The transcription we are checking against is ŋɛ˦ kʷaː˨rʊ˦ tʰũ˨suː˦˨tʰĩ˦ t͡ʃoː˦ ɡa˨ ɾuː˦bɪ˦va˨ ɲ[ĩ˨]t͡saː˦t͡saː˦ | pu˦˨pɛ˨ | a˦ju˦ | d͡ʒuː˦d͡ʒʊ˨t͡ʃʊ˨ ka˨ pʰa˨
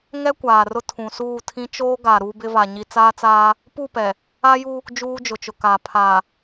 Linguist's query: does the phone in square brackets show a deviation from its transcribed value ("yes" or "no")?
yes